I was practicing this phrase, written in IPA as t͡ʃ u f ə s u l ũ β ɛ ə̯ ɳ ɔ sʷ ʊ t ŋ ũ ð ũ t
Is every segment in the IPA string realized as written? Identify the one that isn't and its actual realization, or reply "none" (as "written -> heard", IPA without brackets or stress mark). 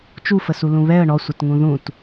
ʊ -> ə